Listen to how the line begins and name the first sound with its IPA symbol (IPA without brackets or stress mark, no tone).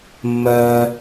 mː